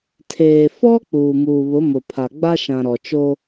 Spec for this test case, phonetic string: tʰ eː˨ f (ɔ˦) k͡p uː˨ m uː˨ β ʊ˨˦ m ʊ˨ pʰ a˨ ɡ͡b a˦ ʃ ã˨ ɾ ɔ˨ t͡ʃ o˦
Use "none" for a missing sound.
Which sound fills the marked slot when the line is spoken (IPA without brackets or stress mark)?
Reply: ɔ˦